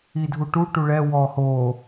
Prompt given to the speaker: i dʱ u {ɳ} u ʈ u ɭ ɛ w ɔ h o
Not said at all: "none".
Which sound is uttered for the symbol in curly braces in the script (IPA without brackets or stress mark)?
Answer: ʈ